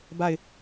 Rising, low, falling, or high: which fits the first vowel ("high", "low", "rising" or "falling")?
falling